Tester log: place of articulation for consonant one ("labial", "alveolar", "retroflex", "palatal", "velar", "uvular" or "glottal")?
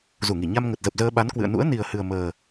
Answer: alveolar